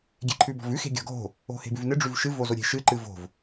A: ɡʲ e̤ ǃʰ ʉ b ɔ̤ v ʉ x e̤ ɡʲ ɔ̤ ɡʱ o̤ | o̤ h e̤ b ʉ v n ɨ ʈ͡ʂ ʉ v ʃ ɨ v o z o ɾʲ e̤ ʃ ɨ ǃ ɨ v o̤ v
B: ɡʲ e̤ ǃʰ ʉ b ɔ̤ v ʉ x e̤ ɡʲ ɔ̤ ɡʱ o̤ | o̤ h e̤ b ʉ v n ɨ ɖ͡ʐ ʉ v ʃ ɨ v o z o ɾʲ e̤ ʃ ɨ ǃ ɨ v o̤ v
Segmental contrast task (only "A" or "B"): B